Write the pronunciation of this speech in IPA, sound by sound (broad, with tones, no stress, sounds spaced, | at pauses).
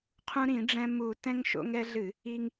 qʰ ũ˧ ɾ ĩ˧˩˧ ɖ͡ʐ ɛ̃˧ m u˧˩˧ t ɛ̃˧ ŋ ʃ o̰˧ ŋ ɛ˧ ɮ ɨ˧˩˧ | i˧ ŋ